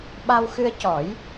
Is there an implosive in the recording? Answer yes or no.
yes